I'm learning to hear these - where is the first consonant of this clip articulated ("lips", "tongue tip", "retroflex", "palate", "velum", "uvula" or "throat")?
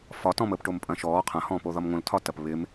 lips